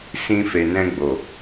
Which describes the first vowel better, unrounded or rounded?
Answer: unrounded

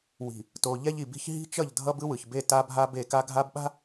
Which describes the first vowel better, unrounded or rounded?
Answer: unrounded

